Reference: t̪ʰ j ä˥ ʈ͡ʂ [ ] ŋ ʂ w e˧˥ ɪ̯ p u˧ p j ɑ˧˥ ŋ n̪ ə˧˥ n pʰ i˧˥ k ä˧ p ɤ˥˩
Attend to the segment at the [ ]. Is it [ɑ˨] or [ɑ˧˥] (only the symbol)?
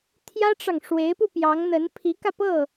ɑ˨